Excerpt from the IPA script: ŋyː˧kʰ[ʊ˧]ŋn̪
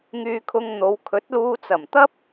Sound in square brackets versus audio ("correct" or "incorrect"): correct